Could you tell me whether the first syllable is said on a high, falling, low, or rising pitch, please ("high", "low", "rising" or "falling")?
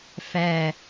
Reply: falling